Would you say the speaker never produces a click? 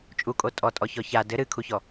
yes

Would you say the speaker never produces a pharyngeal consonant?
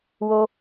yes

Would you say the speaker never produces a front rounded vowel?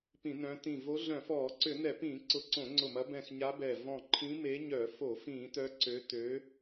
no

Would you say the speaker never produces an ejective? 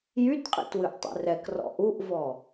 no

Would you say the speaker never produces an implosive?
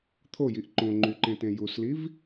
yes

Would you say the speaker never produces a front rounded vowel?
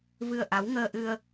yes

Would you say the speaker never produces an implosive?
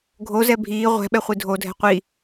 no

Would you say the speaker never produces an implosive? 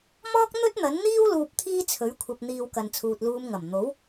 yes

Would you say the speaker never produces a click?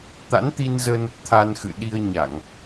yes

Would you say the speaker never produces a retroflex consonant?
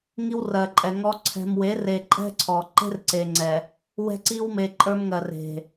yes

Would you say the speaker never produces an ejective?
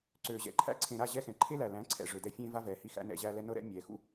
yes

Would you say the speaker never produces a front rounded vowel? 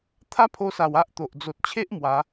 yes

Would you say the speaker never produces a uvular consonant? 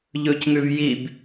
yes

